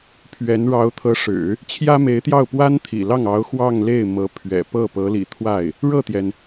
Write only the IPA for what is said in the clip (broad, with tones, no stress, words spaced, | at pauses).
pʰɥɛ˧˥n ɻɑ˧˥ʊ̯t̪ʰɤ˧˥ʂɻ̩˨˩˦ | t͡ɕʰjä˥me˧˥ɪ̯t̪jɑ˥˩ʊ̯ pwa˥nt̪ʰḭ˨˩lɑ˥˩ŋ ɑ˧˥ʊ̯ xwɑ˥˧ŋle˥˩ɪ̯ mɤ˧˥pʰɥɛ̰˨˩ pɤ˥˩pɤ˧˥ lḭ˨˩t̪ʰwa˥˩ɪ̯ | ɻɤ˥˩t̪jɛ˩n